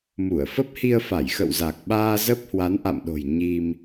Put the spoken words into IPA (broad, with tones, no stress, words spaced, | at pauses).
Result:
mu˧˩ə̯fə˦˥p̚hi˧ə̯ fa˧˩jxə̰˧˨wza˨˩k̚ɓaː˧ zə˦˥p̚hwa˨˦nʔa̰˧˨mɗo̤˨˩j ɲi˧m